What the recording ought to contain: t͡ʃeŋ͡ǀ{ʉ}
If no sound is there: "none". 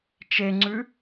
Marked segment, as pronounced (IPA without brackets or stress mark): ʉ